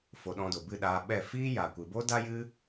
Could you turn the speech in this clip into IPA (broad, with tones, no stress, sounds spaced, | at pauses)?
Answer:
f o˧ ɗ ɔ̃˧ d o˨ b ɨ˦˨ ɗ aː˧ ɓ ɛ˦˨ f iː˦ j a˨ kʷ ɨ˨ b o˦ d a˦ j ɨ˦